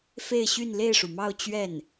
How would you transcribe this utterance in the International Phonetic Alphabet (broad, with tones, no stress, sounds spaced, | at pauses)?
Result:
f e˥˧ ɪ̯ ɕ y˥˧ n l e˥˩ ɪ̯ ʂ u˩ m ɑ˥˧ ʊ̯ t͡ɕ ɥ ɛ˥˩ n